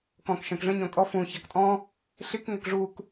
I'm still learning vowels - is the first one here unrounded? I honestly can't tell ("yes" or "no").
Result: no